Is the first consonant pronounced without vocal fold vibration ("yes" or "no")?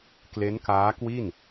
yes